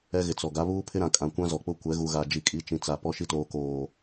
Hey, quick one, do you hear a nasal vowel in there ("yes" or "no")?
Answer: yes